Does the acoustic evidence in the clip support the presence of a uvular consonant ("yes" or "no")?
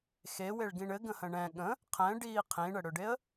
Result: yes